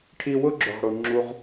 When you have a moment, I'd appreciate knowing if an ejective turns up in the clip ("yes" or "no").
no